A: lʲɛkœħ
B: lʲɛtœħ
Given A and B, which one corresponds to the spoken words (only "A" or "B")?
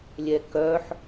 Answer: A